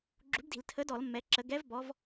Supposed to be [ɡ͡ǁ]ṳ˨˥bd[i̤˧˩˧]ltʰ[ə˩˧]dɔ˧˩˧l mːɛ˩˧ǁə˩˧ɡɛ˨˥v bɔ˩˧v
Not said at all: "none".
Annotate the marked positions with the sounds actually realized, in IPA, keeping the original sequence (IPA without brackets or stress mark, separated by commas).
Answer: ɡ͡ǁ, i̤˧˩˧, ə˨˥